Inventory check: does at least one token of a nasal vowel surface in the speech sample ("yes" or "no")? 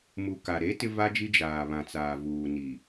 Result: yes